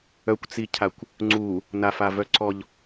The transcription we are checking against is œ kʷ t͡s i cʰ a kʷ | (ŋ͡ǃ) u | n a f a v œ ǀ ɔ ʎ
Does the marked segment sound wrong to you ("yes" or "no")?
yes